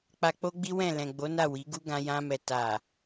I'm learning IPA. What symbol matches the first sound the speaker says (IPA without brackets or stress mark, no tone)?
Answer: k͡p